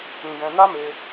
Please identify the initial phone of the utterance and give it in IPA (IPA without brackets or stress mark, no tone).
ĩ